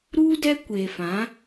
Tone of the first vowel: high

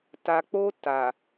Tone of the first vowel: low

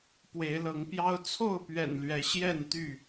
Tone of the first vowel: rising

